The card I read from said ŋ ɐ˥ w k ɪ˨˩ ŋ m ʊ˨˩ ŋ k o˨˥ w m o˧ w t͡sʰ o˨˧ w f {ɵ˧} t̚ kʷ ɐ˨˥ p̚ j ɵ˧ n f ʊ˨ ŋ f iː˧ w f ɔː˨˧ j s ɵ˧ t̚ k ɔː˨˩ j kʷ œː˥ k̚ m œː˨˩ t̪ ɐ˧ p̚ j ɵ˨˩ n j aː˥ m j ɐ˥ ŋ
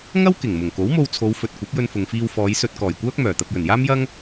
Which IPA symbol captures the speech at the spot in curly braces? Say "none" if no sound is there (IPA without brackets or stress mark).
ɵ˨